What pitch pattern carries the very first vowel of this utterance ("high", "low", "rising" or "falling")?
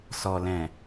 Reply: low